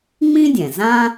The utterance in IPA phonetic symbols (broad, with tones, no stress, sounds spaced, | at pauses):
ŋ͡m ĩ˥ dʲ ɛ̃˩ z ã˥